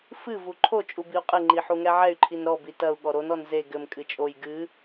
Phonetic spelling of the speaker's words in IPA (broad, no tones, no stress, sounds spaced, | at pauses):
f ɨ v u ǃʰ o t͡ʃʼ u b i u̯ qʼ ɘ ŋ͡ǃ i ħ u ŋ ɛ ʕ ɛ y̯ ǃʰ i n ɾ ɔ b i t ɐ u̯ ɠ ɔ ɾ o n ɔ n z e ɡ ɘ m kʼ ɨ t͡ʃʼ o j ɡ ɨ